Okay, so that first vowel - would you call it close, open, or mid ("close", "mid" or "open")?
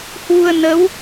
close